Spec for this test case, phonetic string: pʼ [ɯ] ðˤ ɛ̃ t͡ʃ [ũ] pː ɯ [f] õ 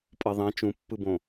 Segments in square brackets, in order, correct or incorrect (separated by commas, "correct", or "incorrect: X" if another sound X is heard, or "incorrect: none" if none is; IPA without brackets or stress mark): incorrect: ɤ, correct, incorrect: b